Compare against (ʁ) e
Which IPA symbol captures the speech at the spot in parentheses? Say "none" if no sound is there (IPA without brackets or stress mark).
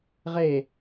ʁ